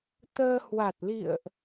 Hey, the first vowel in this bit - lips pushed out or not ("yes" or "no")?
no